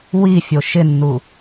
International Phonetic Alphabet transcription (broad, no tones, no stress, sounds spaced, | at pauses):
w i fʲ o ʃ ɪ nː u